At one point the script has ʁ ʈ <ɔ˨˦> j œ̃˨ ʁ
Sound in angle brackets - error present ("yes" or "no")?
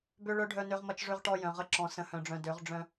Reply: yes